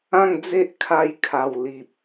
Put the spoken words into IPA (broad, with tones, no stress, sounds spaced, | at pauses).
ã˥˧ ŋ d͡z e˦ ʔ kʰ a˥˧ j kʰ a˨˩ w l i˨ p̚